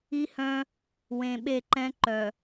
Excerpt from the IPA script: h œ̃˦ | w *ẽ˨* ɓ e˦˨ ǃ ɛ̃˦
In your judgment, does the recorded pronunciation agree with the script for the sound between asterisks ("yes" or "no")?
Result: yes